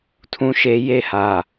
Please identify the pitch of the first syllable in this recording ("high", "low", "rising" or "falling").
high